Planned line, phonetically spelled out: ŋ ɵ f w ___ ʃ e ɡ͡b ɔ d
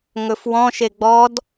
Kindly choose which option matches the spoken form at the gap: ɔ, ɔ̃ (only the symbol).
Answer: ɔ̃